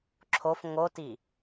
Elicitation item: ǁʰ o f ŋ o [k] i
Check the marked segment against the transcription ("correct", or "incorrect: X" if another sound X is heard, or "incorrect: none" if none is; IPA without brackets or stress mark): incorrect: t